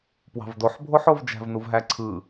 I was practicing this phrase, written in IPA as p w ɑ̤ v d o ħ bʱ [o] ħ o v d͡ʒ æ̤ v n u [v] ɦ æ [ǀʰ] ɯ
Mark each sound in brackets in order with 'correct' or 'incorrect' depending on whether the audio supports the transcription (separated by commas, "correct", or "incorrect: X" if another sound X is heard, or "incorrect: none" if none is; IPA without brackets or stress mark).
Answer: correct, correct, correct